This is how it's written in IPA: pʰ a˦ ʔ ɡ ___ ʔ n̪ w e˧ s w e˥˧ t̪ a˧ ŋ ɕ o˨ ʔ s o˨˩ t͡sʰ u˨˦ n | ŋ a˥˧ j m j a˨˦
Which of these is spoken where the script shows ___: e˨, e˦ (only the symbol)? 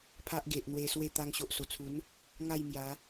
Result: e˨